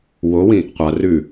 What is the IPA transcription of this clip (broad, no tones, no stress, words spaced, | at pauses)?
wowĩ | qʷa rʉ